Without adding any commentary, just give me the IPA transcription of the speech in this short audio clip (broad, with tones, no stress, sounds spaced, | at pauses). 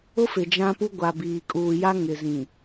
ʊ˦ f ɪ˨ d͡ʒ ã˦ p u˦ ɡʷ a˨ b iː˨ kʼ uː˨ j a˦ ŋ ɪ˨ z ĩ˨